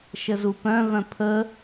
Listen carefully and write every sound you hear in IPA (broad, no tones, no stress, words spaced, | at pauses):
ʃəzupœ̃vœ̃ pʰə